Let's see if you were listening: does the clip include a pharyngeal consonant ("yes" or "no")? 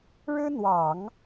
no